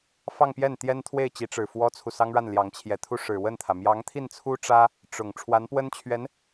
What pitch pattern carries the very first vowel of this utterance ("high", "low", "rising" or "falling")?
falling